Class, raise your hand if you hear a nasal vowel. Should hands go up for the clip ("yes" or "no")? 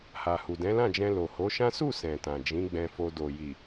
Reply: yes